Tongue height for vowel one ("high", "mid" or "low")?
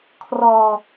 mid